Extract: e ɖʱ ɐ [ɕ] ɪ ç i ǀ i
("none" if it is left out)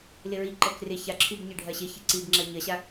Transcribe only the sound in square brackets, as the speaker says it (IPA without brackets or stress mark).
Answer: ɕ